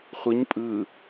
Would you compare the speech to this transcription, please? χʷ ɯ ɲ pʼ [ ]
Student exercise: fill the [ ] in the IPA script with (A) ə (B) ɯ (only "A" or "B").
B